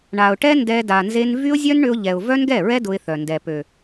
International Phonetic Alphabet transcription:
ɳ a˨ ʊ̯ ʈ ɛ˦ n d ɛ˧ d a˨ n z e˧ n v y˦ ʊ̯ zʲ œ˦ n ɳ ʏ˧ ʊ̯ ʎ ɛ˨ ʊ̯ v œ˦ n ɡ ɛ˦˨ ɹ ɛ˦ d ʊ˧ ɪ̯ θ œ˨ n d ɛ˨ p ø˨

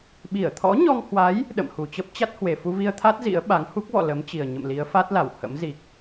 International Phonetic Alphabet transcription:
ɓ i˧˩ ə̯ t̪ʰ ɔ̰˧˥ ɲ ɔ˧ ŋ h w a˨˦ j | ɗ ə̰˧˨ m h u˨˩ t͡ɕ ə˦˥ p̚ t͡ɕ a˦˥ t̚ h w e˨˩ f u˧ v i˧ ə̯ t̪ʰ a˦˥ t̚ z ḭ˧˥ ə̯ ɓ a˨˦ ŋ h u˦˥ k̚ v ɔ̰˧˨ l ə˨˦ m t͡ɕ i˨˩ ə̯ ɲ ə̰˧˨ m l i˨˦ ə̯ f a˦˥ t̚ l a˧˩ w h ə̰˧˥ m z i˨˩ k̚

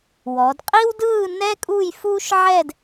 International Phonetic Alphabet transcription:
w ɔ˩˧ d qʼ i˥ w d ɯː˥˧ n ɛ˥ kʼ uː˥˧ j f uː˥ ʃ ʕ ɛ˥˧ d

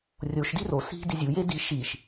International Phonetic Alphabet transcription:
rʲ o ʃ d i r o s i̤ d i zʲ u j e d i ʃ i ʃ

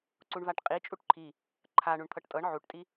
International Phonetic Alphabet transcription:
ǀ u ɳ v a ʈ qʼ i t͡ʃʼ u ʈ ǃʰ i | ǃʰ a ɳ u ɳ t̪ʰ ɤ ʈ tʼ ɤ ɳ ʕ u ʈ tʼ i

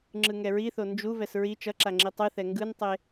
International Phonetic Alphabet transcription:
ŋ͡ǁ ɯ ŋ ɛ ɹ i θ o n d͡ʒ u v ɛ s ɹ i t͡ʃ ʌ ǁ a ŋ͡ǁ i tˤ ɯ θ ɛ ŋ ɡ ɯ n tˤ e

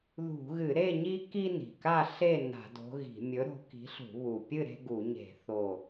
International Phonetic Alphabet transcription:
ð ṳ˧˩˧ ɣ ɨ˧˩˧ ɾ e˥˨ ɲ i˦ k i˦ n i̤˨˩ k a˥˨ ɬ e˥˨ n a̤˧˩˧ d o̤˨˦ ɣ i̤˧˩˧ mʲ ɵ˨˦ ɾ o̤˨˦ k i̤˨˦ ɬ ṳ˧˩˧ β u˨˩ pʲ ɨ˥˨ ɾ e̤˦ ɡ u˧˩˧ ɲ e̤˧˩˧ θ o˨˩

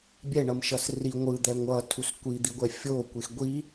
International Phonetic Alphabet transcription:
bʲ ɛ ɳ ʌ m ʃ ʌ s r i ŋʷ ɯ d̪ ɛ ŋʷ ʌ tʰ u s kʷ i d̪ i ɡʷ ɛ fʲ o kʷ e x ɡʷ i

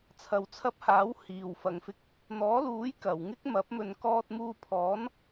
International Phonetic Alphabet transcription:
t͡sʰ ɐ˨ w t͡sʰ ɐ˧ p̚ h aː˨˥ w h iː˨ w f ɐ˨˧ ŋ f ɪ˧ k̚ | n̪ ɔː˨˥ l uː˨˥ j k ɐ˨ w ŋ ɪ˥ k̚ m ɐ˨˥ p̚ m ɵ˧ n k ɔː˧ t̚ m uː˧ pʰ ɔː˨˥ n

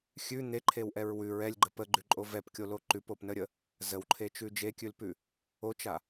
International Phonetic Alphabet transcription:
xʲ ʉ n̪ e ǃʰ e w ʔ ɛ ɹ w ʉ ɹ ɛ lʲ ɡ͡ǃ ə p ə ɡ͡ǃ ʉ ǃʼ o v ɛ p kʲ o l o ǃ ʉ p o p n ə ɾʲ ə | z ə w ǃʰ e t͡ʃ ʉ d͡ʒ e kʲ ʉ l p ʉ | o t͡ʃ a

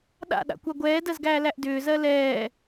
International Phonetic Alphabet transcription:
ɗ a̰ ɗ a̰ kʷ a ɡʷ ɛː d ɜ z ɡ æː l æ ʔ d ʏː z ɜ l ɛː

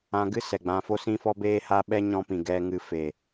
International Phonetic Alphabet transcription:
ã˨ ɡ ɨ˧ s ɛ˨ ɡ͡b ã˧ f o˧ s ĩ˧ f ɔ˧ b eː˦ h a˦ ɓ ɛ˦ ɲ ɔ̃˧ p ĩ˨ ɡ ɛ˧ ŋ ɨ˧ f e˨

